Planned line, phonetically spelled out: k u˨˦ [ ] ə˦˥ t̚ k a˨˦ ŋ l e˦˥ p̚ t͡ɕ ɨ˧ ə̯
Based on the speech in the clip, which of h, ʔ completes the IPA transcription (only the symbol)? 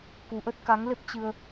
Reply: ʔ